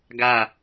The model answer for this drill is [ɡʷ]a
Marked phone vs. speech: incorrect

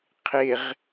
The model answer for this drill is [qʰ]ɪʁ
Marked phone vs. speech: correct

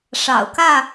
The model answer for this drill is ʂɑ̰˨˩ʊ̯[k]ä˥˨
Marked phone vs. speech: correct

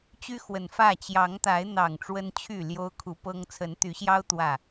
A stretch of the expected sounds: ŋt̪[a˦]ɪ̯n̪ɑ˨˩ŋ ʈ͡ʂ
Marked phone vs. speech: incorrect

